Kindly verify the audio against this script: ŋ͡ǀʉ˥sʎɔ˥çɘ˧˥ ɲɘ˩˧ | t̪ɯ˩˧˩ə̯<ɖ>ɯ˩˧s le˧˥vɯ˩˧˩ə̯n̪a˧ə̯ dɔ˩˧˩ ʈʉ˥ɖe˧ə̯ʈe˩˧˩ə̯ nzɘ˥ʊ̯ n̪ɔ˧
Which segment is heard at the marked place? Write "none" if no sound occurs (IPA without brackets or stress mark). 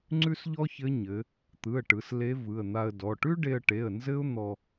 ʈ